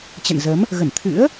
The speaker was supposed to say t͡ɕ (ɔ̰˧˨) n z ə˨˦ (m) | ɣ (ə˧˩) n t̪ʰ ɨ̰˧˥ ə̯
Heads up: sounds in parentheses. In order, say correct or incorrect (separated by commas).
incorrect, correct, correct